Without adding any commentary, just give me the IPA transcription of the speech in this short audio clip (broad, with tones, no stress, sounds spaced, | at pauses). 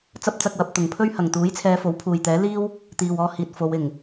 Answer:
t͡s ɐ˥ p̚ t͡s ɐ˧ k̚ w ɐ˨˥ p̚ t̪ ʊ˨˩ ŋ pʰ ɵ˥ ɥ h ɐ˨˩ ŋ t̪ uː˨˥ j t͡sʰ ɛː˨˧ f o˨˥ w pʰ uː˨ j t̪ ɛː˨˥ l iː˥ w | t̪ iː˨ w ɔː˧ h iː˨ t̚ f o˨˧ w ɪ˨˩ ŋ